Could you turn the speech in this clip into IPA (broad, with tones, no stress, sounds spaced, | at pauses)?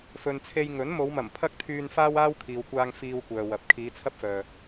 f ɵ˨ n t͡sʰ e˧ j ŋ ɵ˨˥ n m o˨˧ w m ɐ˨˩ m pʰ ɐ˥ k̚ t̪ʰ yː˧ n f aː˥ w aː˥ w kʰ iː˨ w kʷ aː˧ ŋ f iː˧ w kʷ œː˨ w ɐ˨ p̚ kʰ iː˨˧ t͡sʰ ɐ˥ p̚ f œː˨